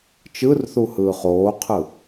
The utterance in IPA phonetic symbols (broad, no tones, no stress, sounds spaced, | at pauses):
t͡ʃ ɯ r θ u h ɯː χ oː qʰ ɯ